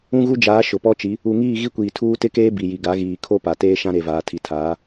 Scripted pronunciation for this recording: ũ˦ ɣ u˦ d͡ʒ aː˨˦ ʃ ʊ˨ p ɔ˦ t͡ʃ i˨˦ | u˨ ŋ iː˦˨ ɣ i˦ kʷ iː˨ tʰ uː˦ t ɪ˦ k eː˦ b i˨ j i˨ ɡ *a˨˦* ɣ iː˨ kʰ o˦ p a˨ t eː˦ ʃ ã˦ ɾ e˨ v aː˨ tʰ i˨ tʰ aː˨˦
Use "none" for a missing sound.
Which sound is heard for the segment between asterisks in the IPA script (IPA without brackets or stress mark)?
a˨˦